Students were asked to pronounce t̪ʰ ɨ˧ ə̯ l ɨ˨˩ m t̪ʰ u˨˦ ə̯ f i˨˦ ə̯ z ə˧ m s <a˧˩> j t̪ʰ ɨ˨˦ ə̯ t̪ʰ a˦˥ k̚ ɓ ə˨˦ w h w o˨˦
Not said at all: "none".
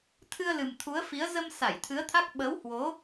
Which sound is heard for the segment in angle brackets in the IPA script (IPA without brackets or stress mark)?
a˧˩